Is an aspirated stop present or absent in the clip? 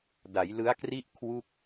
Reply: present